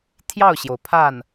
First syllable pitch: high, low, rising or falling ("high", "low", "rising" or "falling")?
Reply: falling